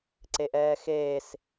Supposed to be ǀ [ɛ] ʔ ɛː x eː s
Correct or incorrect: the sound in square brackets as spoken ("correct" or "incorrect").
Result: incorrect